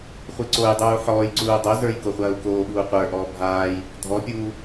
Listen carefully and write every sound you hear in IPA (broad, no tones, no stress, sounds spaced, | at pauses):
χʷ i ǀ o j dˤ uː ħ ɔː j ǀ uː dˤ o z ə˞ j k o χʷ ɐː u̯ k oː ɓ uː qʷ ə˞ ʔ ɔː bʱ aː j | dʱ ɔ pʲ uː